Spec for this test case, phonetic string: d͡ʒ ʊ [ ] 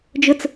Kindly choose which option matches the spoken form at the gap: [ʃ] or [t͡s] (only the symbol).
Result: t͡s